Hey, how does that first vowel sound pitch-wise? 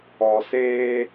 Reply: low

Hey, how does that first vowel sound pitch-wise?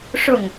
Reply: falling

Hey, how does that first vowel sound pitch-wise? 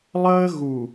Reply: high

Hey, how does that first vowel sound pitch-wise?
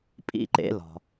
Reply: falling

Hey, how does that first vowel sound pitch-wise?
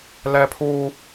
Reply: high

